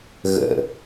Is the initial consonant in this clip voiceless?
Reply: no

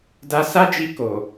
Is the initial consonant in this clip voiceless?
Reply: no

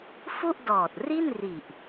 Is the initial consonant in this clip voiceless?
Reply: yes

